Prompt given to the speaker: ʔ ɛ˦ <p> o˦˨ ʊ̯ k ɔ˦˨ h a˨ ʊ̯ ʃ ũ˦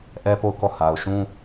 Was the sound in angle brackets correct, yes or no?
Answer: yes